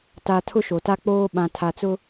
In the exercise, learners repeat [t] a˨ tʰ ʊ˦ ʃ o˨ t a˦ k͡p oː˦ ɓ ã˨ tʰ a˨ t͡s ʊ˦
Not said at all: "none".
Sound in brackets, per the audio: t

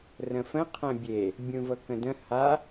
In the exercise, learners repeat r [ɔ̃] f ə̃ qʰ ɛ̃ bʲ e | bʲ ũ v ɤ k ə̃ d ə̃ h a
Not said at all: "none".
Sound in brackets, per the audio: ə̃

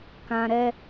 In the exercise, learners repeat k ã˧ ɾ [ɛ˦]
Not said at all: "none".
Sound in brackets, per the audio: ɛ˦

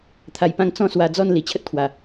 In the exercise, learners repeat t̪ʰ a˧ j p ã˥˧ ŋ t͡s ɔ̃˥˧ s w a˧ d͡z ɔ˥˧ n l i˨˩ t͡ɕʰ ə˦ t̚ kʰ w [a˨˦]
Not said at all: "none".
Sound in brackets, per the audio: a˨˩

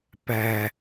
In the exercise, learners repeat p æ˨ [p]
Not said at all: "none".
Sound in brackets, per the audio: none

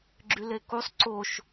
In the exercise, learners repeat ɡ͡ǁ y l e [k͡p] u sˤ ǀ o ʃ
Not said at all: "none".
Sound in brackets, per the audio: k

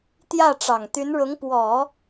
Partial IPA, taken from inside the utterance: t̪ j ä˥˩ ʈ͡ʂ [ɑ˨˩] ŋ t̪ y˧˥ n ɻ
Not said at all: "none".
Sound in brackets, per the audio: ɑ˨˩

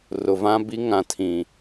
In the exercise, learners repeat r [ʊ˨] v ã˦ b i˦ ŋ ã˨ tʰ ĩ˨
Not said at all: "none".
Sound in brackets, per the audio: ʊ˨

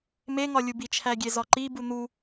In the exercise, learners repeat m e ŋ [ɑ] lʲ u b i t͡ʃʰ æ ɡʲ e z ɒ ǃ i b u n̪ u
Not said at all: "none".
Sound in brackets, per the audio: ɒ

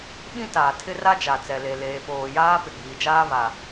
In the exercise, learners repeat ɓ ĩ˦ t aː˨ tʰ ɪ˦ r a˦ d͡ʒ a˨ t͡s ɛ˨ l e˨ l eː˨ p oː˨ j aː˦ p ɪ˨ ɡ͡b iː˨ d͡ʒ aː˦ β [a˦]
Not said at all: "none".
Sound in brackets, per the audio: a˨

